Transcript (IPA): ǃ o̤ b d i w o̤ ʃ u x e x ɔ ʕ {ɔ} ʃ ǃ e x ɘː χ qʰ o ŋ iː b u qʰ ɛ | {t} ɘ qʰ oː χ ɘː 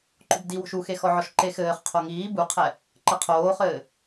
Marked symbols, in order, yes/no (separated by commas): yes, no